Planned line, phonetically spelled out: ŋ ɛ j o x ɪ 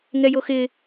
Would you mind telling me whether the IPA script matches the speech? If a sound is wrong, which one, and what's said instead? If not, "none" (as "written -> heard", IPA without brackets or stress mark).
none